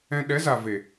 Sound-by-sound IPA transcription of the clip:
ɛ̃˧ ɗ ɛ˨˦ z a˨ v e˨

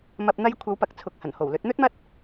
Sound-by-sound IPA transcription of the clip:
m ɐ˨ p̚ n̪ ɐ˧ j kʷʰ ɐ˨˧ w p ɐ˨ k̚ t͡sʰ ʊ˨ k̚ h ɐ˨˩ n h o˨˩ w l ɵ˨˥ t̚ n̪ ɵ˥ t̚ m ɐ˥ t̚

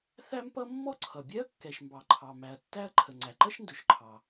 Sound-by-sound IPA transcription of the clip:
θ æ˥ m p ʌ˥ mː ɔ˥ ǀʰ ʌ˩ bʲ ɛ˥ ɐ̯ kː ɛ˩ ʃ m b ɑ˩ ǃʰ ɑ˩ m æ˩ ɐ̯ tː æ˥ ɐ̯ ǃʰ ə˩ ŋ͡ǀ æ˩ ǃ ʌ˥ ʃ n d ʊ˩ ʃ ǃʰ ɑ˩

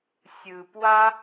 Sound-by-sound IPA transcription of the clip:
sʲ ɯ˧ p w a˥

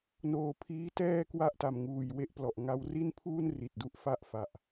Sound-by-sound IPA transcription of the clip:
n oː˨˩ pʰ iː˦˥ t ɛː˥˩ k w a˥˩ ʔ t a˨˩ m ŋ uː˨˩ j w e˥˩ ʔ p l ɔ˨˩ ʔ ŋ a˧ w r i˥˩ n pʰ uː˥˩ n r i˨˩ t̚ d u˥˩ ʔ f a˥˩ ʔ f a˨˩ ʔ

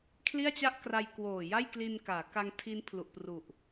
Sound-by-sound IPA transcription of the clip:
kʰ l i˥˩ a̯ t͡ɕ a˥˩ ʔ k r a˧ j k w oː˨˩ j a˥˩ j k l i˧ n k aː˩˦ k a˧ ŋ tʰ i˦˥ n pʰ l u˨˩ ʔ p r u˨˩ ʔ

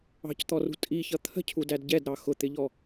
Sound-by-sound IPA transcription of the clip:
ɑ̤ c t̪ ɔ r ṳ tʼ i ç ʌ t̪ʰ ə̤ cʰ u d æ d ɟ ɛ d ɾ ɑ x ʊ t̪ ɪ ʎ ɔ

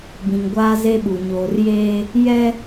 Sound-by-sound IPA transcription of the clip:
b ĩ˨ ŋ ɡʷ aː˦ z e˦ ɓ u˨ ɲ oː˨ r j eː˦ | j ɛ˦

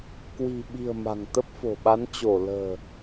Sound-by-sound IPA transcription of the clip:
k w i̤˨˩ ɓ i̤˨˩ ə̯ m a̤˨˩ ŋ t̪ ə˦˥ p̚ f o̤˨˩ ɓ a˨˦ n t͡ɕ o˧˩ l ə̤ː˨˩

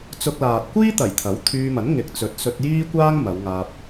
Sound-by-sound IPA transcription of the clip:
t͡s ʊ˧ k̚ l aː˨ t̚ kʷ iː˥ t̪ ɐ˨˩ j t̪ʰ ɐ˨˥ w t̪ʰ yː˧ m ɐ˨˥ n ŋ ɪ˨˥ k̚ t͡s ɵ˨˥ t̚ s ɵ˧ t̚ j iː˥ kʷ aː˥ ŋ m ɐ˨˧ w ŋ aː˧ p̚

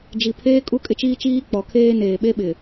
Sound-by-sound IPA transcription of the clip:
d͡ʒ i˨ pʰ eː˦ kʼ u˦ kʼ ɪ˦ t͡ʃ iː˦ t͡ʃ iː˦ k͡p ɔ˨ kʰ eː˦ n eː˨ ɓ e˦ ɓ ɪ˨

